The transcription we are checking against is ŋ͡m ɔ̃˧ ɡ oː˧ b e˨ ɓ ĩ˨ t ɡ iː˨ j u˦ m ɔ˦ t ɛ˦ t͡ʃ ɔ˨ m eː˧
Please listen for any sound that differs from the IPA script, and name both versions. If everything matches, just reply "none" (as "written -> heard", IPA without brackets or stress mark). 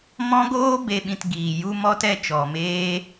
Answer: ŋ͡m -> m